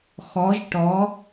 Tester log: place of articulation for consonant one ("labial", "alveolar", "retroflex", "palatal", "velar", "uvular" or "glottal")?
velar